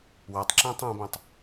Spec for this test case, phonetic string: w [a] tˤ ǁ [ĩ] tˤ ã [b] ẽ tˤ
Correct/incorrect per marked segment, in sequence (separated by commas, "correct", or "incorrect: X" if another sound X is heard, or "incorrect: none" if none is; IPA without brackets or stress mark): correct, incorrect: ẽ, correct